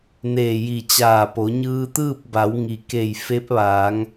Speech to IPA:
n eː˧˩ j i˧˩ t͡ɕ aː˧˩ p o˩˧ ɲ ɯː˧ t̪ ɯː˥˨ p̚ b a˩˧ w ŋ i˩ k e˧˩ j f e˧˥ p̚ ʋ aː˩˧ ŋ

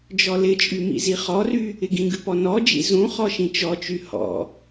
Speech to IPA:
d͡ʒ ɔ l ɪ t͡ʃʼ y m ḭ z i χ ɔ r y | ɪ ɡ ĩ ɡ ʉ p ɔ n ɔ d͡ʒ ḭ z ũ χ ɔ ʃ ĩ t͡ʃ ɔ t͡ʃ y h ɔ̰

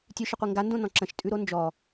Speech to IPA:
tʲ ʉ ʃ ə qʷ i ŋ ɡ a n d õ n ɔ̃ ǁ ə̃ ʃ tʼ ʉ ɾ o n d͡ʒ ɔ

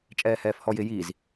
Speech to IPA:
t͡ʃʼ ɛː h ɛː f h ɔ j ɪ j i z

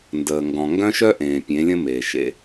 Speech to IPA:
n d əː˨ ŋ ɡ ɔ̃˨ ŋ ɡ œ̃˦ ʃ œ˦ ʔ ẽː˨ pʲ ẽ˨˦ lʲ ə̃˦ m eː˨ ʃ ḛ˦

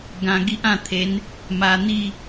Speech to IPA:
ɡ ã˧ ɡ i˦ ʔ ã˧ t̪ʰ e˨˦ n | m a˧ n̪ i˥˧

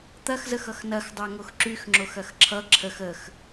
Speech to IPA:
t̪ ɐ x z ə x ʌ x n ɐ x dˤ a ŋ o x ǁ y x ŋ͡ǁ o x ɐ x ǁʰ ʌ ǁʰ ə x ə x

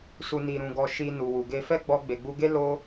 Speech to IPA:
s u˨ n i˨ ɾ ũ˨ ɡ ɔ˨ ʃ i˨ n u˨ w u˨ ɡ e˧ f ɛ˦ ɡ͡b ɔ˧ ɡ͡b e˨ ɡ͡b u˧ ɡ e˦ l o˦

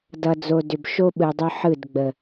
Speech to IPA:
d ʌ˨ d͡z o˨ d ʏ˨ b ʃ o˦ ɓ ɯ˨ dˤ ʏ˦ ħ ɯ˦˨ d ɡ͡b ə˨

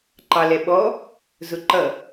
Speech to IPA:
ǃ ɑ l ɛ ɓ ɔ | z ʊ ǃ ʌ

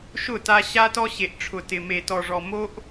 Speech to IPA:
ʃ ʊ˦˨ t a˦ ɕ a˦ t ɔ˦ ɕ e˨ ʔ ʈ͡ʂʰ ʊ˨ t ɪ˨ m e˨ t ɔ˨ ʐ ɔ˨ m o˦ ʔ

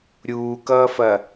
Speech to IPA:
ɾʲ uː k ʌː f ɐ

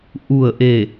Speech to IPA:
ʔ u˧˩ ə̯ ʔ e˧˩

